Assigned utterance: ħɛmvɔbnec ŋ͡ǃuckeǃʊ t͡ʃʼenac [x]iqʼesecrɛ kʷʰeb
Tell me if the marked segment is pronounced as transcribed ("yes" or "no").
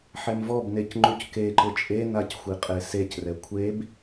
no